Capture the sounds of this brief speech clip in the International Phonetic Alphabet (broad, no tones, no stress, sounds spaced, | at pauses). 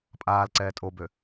pʼ aː l ǀ ɛː tʼ o b ø